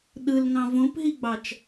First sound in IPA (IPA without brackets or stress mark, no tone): ɗ